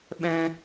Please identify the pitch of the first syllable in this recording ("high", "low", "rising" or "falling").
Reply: high